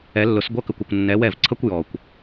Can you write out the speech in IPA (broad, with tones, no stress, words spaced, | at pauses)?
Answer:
ɛ˨˩˦lːʊ˨˩˦sɡʷʌ˧˥˧ kə˨kʷʊ˨kʷnːɛ˨˦ wɛ˥˩vǀʰʌ˥kʷ jɔ˨kʷ